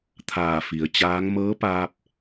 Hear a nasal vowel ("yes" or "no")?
no